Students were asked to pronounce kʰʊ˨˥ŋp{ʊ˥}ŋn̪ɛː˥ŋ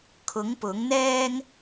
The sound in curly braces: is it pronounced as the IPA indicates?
no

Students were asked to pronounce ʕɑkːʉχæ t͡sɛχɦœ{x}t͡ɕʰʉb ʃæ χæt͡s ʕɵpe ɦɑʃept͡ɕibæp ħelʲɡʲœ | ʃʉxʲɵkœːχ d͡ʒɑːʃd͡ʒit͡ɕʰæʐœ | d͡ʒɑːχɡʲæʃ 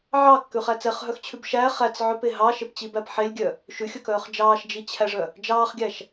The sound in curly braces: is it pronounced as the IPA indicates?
yes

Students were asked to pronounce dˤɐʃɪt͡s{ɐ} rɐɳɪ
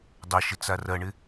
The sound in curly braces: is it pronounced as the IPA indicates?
no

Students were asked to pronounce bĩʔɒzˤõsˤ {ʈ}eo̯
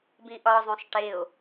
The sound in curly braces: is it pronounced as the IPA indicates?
yes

